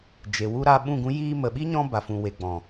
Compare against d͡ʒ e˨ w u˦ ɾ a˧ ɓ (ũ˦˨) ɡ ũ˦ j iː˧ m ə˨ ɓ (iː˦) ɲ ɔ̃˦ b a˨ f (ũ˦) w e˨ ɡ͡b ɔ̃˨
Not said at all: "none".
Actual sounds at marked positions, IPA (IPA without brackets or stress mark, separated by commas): ũ˦˨, i˦, ũ˨